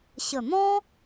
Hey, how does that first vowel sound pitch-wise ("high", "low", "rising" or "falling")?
low